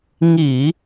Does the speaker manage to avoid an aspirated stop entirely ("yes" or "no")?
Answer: yes